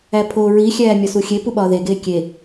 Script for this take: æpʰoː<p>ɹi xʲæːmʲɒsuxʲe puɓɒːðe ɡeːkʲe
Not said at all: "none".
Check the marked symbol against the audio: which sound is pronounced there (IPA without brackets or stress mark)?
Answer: none